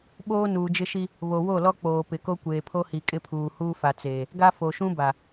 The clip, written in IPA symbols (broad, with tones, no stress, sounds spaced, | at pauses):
ɓ oː˦ n uː˨ d͡ʒ ɪ˦ ʃ i˦ | β o˨ w o˦˨ l ɔ˦ k͡p oː˨ p ɪ˨ k o˦ kʷ eː˨ pʰ o˦ h i˨ kʼ ɪ˦ pʰ uː˨ h uː˦ f a˨ t͡s eː˨ | ɡ a˦ f o˨ ʃ ũ˦ b a˨